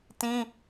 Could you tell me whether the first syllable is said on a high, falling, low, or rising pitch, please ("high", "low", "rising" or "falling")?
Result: high